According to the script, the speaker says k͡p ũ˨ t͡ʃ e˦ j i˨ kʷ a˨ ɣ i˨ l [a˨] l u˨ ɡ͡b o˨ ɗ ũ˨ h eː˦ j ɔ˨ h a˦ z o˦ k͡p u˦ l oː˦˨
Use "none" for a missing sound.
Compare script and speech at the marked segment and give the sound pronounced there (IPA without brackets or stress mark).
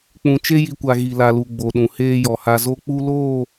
a˨